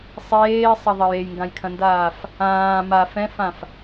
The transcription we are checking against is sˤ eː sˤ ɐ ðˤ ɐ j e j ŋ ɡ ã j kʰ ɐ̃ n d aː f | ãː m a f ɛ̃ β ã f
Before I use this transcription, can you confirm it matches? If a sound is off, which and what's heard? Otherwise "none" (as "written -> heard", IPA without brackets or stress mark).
β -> f